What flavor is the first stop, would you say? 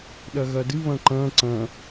implosive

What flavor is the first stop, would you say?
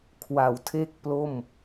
aspirated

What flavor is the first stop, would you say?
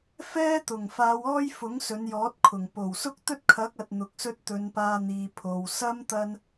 plain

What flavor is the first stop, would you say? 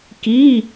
plain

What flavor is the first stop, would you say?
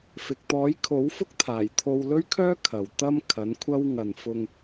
plain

